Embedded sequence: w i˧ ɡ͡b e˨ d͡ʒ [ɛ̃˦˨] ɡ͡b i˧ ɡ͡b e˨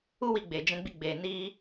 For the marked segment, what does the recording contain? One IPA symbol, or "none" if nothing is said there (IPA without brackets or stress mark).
ɛ̃˧